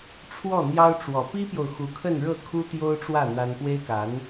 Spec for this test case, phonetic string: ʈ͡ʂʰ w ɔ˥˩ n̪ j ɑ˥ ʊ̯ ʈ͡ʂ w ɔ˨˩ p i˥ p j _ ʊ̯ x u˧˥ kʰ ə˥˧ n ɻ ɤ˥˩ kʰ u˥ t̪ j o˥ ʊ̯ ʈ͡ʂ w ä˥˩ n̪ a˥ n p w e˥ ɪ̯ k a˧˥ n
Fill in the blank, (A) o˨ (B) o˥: A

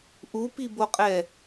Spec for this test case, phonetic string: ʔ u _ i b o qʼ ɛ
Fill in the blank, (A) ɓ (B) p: B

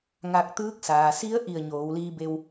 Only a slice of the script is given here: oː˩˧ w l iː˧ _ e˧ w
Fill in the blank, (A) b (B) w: A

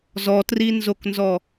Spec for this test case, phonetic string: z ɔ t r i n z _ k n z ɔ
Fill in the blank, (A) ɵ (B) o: B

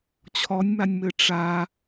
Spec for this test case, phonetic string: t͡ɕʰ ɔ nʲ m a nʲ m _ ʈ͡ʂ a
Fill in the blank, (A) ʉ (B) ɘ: B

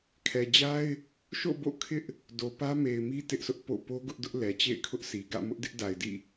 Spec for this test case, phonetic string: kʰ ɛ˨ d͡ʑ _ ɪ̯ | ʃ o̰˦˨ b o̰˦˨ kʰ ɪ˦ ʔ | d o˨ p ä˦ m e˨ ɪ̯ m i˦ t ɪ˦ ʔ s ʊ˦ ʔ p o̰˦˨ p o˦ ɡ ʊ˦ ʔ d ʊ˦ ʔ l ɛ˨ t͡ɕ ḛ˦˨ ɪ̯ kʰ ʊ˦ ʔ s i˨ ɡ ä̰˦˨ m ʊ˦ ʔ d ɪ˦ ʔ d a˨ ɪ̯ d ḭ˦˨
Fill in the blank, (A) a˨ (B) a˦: B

